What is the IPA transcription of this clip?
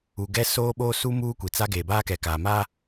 u˨ ɡ ɛ˦ s oː˦ ɓ oː˦ s u˦ m uː˦ kʷ i˨ t͡s a˦ ɡ eː˨ b aː˦ k ɛ˨ k aː˨ m a˦

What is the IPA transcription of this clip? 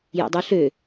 j ḛ dˤ u ɬ ø

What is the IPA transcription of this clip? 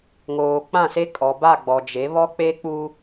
ŋ oː˨ k͡p ã˦˨ s e˦ kʼ ɔ˨ b a˦˨ ɡ͡b ɔ˨ d͡ʒ e˨˦ β ɔ˦ k͡p e˦ k͡p u˦

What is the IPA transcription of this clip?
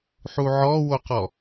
ħ u ʕ ɔ w o q ɔ

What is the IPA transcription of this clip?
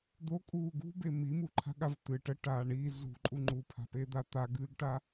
d̪ o kʼ uː ɡ ṳ b e m i m u ǃʰ a̤ ɠ a v t̪ ɨ ʈ ə ʈ aː ɳ i z ṳ ǃʼ u ŋ͡ǃ u pʰ a̤ p e d̪ a t̪ a ɡ ɨː ɡ ʈ a

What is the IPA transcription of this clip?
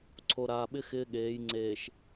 ǀʰ o˨ ɾ aː˨ ɓ ɪ˦ x ɪː˦ ɠ eː˨˦ j ŋ͡ǀ eː˨ ʃ

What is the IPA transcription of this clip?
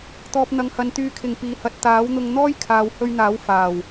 t̪ ɔː˨ p̚ n̪ ɐ˨ ŋ h ɐ˨ n t̪ yː˨ kʰ ɪ˨˩ ŋ p iː˨ h ɐ˨˥ t̚ t̪ aː˨˥ w n̪ ʊ˧ ŋ n̪ ɔː˥ j kʰ aː˨ w h ɵ˧ ɥ n̪ aː˨˥ w f aː˨˩ w

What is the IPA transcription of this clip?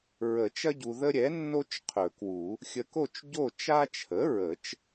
ɹ ə˨˩˦ t͡ʃ ɐ˦ ɟ u˨ ð ə˦ ɾʲ ɛ˩˥ nː o˦ t͡ʃ qʰ ɵ˨˩˦ k w u˨˩˦ | xʲ ə˨ k o˦˨ t͡ʃ ɟ o˦˨ t͡ʃ a˦ t͡ʃʰ ə˩˥ ɹ ə˨˩˦ t͡ʃ

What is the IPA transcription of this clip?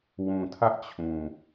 w ũ˨ tʰ ä˦ ʔ t͡ɕʰ ũ˨

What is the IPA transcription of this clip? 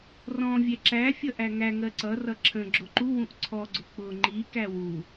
r ɔ̃ vʲ ɛ ǁ æ fʲ ʌ ʔ æ ŋ æ ŋ ɜ ǀ ʌ r ʌ ǁʰ ə̃ ɡ͡ǁ ʊ ǃ u w ũ ʔ ǀʰ ɔ ɡ͡ǀ ʊ k͡p ʊ ŋ͡ǃ i k æ w u

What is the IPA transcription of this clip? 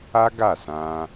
a˦ ɡ a˦˨ s ã˧

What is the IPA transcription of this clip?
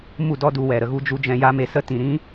m u˦˨ d ɔ˦ d u˧ w ɛ˨ ɾ ə˧ ɣ u˦ d͡ʒ u˦ d͡ʒ ɛ̃˧ j a˦ m e˧ s ə˦ t ĩ˨ ɾ ĩ˦

